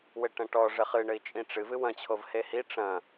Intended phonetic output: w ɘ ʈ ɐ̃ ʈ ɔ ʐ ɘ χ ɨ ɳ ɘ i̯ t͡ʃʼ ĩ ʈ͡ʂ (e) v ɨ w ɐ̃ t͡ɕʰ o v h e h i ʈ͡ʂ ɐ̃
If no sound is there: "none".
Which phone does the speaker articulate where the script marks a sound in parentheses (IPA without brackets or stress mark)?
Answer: ɨ